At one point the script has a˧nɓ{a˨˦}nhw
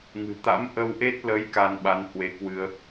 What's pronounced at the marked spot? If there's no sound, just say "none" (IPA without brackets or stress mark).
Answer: a˨˦